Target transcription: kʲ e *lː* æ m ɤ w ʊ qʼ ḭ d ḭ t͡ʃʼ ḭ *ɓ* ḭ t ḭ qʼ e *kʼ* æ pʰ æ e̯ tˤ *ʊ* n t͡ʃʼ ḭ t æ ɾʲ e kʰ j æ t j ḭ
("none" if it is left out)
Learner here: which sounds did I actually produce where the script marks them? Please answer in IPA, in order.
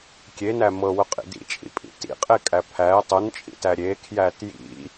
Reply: n, pʼ, kʼ, ʊ

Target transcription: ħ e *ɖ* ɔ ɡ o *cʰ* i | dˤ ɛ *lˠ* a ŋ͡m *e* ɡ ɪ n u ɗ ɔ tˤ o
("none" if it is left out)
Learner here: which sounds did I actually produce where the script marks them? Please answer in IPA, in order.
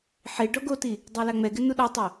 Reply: ɖ, t, l, ɛ

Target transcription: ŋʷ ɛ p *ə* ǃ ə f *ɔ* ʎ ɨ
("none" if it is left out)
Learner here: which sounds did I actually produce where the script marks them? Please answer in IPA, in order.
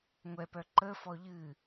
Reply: œ, ɔ

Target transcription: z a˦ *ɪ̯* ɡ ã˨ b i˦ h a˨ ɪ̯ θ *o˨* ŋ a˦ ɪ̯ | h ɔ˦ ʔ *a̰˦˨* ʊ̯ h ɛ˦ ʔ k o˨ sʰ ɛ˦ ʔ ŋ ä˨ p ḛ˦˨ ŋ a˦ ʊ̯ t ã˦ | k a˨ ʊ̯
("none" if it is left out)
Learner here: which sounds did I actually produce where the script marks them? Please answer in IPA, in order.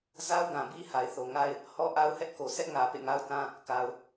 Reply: ʊ̯, o˨, a˦

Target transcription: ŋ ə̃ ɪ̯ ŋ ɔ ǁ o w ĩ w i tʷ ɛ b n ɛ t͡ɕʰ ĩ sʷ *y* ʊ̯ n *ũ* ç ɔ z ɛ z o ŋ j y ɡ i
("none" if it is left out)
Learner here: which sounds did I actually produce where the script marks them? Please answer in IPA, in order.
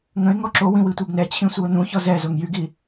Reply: i, ũ

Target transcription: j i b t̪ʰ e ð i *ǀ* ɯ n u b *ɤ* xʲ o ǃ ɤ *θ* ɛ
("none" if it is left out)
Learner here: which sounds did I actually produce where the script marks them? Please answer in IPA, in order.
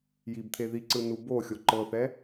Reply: ǀ, o, θ

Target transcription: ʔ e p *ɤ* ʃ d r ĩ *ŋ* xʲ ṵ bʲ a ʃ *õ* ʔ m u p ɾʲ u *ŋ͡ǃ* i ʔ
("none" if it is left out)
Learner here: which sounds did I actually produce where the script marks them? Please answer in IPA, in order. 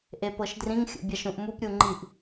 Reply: ɤ, ŋ, ũ, ŋ͡ǃ

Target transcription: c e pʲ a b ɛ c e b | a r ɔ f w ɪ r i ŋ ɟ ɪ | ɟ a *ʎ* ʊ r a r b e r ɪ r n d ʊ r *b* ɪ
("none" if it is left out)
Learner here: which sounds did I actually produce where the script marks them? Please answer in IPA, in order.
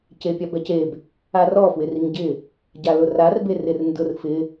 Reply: l, f

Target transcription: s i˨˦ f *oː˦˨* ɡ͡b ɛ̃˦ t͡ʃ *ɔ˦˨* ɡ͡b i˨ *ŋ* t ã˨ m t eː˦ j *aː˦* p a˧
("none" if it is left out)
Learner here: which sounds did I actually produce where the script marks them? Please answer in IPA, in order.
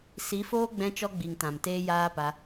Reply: oː˦, ɔ˦, ŋ, aː˦

